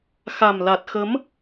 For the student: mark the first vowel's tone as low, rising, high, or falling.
low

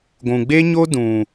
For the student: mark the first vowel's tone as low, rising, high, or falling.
low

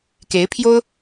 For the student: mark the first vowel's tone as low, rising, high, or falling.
rising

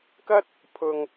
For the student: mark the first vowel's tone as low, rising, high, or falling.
high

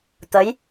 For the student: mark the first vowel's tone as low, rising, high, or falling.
rising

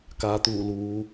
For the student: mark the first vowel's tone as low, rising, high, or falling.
low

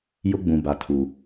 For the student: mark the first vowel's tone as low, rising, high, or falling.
high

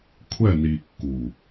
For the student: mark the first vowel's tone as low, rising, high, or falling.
falling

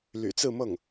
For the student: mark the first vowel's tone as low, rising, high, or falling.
low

